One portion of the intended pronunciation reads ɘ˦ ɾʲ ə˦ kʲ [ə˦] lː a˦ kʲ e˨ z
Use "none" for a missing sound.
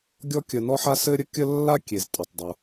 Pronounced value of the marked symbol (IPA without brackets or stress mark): ə˦